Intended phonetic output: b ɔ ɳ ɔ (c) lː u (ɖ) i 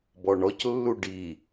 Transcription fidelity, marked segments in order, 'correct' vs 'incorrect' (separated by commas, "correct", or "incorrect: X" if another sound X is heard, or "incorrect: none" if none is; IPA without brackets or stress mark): correct, correct